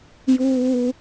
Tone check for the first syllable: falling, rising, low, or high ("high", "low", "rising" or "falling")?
high